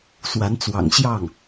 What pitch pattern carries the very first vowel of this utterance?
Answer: rising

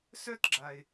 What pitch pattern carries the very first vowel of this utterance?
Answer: high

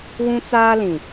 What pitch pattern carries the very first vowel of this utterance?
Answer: high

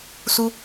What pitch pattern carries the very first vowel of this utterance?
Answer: high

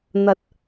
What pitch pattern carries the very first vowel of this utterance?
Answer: low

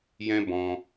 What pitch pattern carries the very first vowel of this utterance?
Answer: high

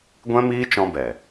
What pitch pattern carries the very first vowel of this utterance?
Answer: high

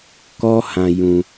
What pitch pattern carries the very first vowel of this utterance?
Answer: high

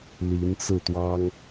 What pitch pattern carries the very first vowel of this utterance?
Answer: rising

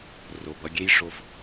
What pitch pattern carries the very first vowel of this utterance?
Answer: low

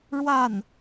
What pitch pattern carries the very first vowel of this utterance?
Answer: falling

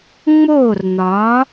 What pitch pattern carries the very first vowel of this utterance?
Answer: falling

